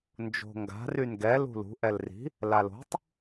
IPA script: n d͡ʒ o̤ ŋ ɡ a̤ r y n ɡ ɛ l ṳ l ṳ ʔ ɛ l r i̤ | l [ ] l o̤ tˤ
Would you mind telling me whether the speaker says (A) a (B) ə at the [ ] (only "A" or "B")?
A